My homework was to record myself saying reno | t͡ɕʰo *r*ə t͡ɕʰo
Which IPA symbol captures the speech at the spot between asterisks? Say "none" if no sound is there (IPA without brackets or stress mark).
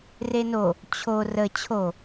r